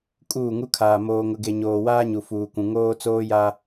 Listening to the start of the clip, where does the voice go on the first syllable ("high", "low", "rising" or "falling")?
falling